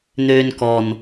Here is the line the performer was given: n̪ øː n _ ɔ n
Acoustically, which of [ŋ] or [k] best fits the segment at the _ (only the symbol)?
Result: k